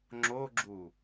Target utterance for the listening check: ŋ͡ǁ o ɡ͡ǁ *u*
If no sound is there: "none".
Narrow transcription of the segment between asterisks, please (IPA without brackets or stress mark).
u